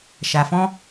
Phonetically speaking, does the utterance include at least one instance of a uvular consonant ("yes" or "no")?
no